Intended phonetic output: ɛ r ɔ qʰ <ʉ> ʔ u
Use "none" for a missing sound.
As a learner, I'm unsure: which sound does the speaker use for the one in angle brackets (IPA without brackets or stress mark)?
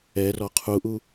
u